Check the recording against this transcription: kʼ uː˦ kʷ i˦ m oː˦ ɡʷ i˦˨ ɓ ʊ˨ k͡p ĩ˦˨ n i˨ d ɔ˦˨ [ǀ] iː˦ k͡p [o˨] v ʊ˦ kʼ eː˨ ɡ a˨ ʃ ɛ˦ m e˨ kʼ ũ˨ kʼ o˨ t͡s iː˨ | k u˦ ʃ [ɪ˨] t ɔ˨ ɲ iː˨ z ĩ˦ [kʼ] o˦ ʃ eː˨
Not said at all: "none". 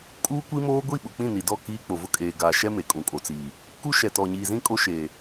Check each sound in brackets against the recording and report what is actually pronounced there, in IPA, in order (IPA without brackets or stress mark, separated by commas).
k, o˨, ɛ˨, kʼ